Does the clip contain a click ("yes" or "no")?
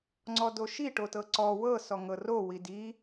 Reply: yes